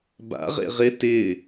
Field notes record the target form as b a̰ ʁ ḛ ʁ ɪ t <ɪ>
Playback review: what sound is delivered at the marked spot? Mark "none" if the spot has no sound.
ɪ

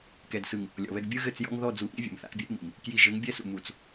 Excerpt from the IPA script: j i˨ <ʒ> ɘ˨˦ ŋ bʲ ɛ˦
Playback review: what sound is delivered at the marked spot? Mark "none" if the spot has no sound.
ʒ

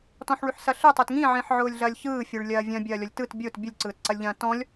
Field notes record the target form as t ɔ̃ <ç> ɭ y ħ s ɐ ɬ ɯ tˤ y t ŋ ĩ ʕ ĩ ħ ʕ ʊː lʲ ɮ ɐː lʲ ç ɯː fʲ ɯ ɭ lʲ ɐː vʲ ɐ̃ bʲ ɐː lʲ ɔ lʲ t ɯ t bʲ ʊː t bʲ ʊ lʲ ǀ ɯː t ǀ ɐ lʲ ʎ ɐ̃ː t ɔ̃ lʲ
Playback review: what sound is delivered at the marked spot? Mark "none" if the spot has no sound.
ħ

